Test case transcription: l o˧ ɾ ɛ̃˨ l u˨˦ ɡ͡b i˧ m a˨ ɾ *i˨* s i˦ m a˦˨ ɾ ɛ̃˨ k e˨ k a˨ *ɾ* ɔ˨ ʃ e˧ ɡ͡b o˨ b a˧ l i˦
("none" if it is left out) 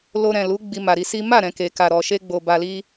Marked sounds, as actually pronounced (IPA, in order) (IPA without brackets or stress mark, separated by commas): i˧, ɾ